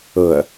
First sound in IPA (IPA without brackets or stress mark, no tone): ɤ